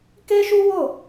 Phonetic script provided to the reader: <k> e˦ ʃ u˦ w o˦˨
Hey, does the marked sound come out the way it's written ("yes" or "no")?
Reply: yes